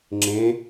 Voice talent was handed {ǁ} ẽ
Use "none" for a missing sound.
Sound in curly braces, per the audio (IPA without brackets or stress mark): ŋ͡ǁ